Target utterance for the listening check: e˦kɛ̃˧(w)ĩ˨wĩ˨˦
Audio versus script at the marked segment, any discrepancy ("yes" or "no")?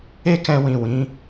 no